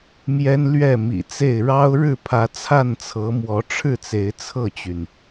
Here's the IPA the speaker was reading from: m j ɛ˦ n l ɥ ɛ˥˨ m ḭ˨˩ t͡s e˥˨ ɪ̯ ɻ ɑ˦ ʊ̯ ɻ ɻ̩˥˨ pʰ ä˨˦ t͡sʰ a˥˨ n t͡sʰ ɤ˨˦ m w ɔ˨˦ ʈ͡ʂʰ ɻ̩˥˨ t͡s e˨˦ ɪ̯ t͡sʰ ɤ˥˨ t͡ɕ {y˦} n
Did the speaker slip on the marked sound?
yes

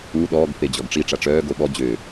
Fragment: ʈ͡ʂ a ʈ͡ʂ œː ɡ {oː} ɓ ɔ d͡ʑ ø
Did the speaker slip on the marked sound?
yes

